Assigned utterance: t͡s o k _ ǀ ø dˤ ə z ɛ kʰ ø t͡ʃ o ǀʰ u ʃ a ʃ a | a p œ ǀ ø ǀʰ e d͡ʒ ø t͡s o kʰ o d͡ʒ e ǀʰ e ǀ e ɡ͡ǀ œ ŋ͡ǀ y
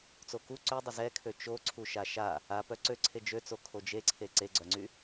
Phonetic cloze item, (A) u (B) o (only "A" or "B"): A